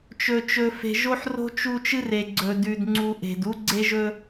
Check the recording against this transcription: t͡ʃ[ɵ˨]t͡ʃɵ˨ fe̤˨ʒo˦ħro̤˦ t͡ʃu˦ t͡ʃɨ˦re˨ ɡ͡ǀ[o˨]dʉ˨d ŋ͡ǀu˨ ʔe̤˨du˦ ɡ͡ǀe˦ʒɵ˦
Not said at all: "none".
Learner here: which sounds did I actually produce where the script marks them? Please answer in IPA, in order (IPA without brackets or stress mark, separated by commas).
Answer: ɵ˨, ɵ˨